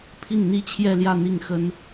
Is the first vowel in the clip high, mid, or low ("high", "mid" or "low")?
high